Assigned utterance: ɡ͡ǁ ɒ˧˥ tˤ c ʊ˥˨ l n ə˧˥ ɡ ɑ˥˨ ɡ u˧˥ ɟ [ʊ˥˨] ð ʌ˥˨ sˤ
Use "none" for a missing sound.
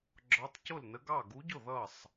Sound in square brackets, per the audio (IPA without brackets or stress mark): ʊ˥˨